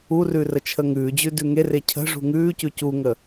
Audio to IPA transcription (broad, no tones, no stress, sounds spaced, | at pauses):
u r ʉ r ə t͡ʃʰ ə ŋ ʉː d͡ʑ ʉ d ʉ ŋ e r e cʰ ə̤ ʐ ṳ ŋ ʉː c ʉ c u ŋ ə